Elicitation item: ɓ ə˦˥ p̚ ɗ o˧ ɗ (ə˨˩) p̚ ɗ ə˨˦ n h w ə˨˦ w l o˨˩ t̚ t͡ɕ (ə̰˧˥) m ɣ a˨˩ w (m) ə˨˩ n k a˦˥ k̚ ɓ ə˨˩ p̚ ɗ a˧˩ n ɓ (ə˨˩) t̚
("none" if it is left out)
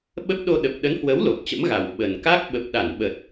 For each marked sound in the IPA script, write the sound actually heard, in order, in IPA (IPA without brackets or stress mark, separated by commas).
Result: ə˨˩, ə̰˧˥, ɓ, ə˨˩